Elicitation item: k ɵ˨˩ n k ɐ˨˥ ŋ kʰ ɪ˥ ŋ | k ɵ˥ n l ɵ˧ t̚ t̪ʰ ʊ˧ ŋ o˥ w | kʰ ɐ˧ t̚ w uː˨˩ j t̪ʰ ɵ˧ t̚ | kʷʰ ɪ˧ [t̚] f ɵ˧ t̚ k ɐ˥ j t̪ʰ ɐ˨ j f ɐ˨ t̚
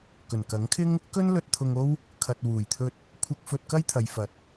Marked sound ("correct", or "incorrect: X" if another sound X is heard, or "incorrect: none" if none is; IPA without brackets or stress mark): incorrect: k̚